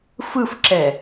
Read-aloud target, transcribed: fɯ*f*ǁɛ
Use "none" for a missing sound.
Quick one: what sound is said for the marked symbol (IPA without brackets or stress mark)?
f